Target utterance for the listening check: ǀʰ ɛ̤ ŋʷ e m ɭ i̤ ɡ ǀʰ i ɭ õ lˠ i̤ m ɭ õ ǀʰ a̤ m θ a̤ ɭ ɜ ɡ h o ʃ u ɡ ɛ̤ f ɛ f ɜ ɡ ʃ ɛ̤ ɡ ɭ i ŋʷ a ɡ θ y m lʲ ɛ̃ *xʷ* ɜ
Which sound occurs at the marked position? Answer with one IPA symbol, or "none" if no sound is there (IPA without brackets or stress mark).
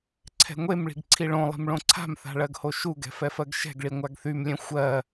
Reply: xʷ